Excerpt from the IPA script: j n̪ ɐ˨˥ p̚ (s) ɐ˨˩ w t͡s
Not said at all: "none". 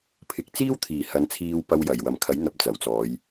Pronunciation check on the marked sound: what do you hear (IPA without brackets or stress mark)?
t͡s